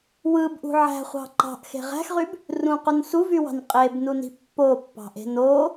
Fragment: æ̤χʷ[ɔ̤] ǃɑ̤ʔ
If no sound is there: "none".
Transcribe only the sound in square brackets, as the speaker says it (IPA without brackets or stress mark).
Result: ɑ̤